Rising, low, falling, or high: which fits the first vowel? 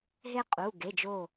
high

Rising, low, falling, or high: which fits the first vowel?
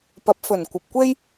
rising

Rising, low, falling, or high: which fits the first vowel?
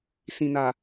low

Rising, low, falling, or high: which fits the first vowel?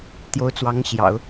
rising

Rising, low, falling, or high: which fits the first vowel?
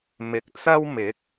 low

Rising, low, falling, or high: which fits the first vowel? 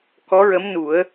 rising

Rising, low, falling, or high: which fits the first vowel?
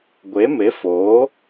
rising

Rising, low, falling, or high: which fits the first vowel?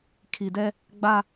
low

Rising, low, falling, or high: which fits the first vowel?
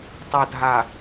low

